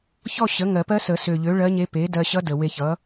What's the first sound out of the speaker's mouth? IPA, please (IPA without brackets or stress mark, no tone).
ç